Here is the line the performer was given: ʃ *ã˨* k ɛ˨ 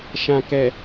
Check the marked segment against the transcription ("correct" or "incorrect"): correct